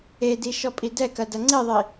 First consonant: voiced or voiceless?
voiced